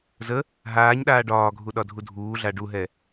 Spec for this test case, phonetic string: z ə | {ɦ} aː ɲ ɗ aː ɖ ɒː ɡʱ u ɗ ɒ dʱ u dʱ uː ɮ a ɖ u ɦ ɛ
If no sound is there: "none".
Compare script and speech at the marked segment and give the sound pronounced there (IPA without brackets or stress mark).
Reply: ɦ